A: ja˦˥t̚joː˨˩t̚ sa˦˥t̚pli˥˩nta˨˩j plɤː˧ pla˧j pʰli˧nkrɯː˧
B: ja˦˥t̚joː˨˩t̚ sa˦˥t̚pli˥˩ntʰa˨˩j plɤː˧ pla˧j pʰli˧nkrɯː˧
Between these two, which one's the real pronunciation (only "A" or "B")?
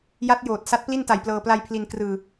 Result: A